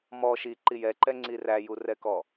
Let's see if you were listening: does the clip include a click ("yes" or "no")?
yes